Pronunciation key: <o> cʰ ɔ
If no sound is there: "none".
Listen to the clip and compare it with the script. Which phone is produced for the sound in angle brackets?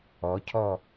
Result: ɔ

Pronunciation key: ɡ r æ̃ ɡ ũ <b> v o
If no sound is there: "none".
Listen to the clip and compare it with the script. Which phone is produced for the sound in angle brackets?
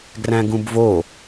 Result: b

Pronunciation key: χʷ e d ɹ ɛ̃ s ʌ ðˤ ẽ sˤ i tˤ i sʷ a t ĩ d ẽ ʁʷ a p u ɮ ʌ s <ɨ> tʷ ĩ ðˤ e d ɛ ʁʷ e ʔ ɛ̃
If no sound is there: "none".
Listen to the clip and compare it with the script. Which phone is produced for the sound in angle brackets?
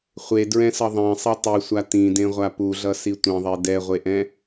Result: i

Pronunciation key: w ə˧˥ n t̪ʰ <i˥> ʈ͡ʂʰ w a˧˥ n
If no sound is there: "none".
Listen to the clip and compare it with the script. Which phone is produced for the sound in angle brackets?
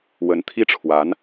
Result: i˥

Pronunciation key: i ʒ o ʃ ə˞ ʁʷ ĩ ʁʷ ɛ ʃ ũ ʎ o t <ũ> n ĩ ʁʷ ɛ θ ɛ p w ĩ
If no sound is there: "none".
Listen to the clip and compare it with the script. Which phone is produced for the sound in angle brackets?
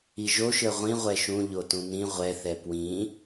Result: ũ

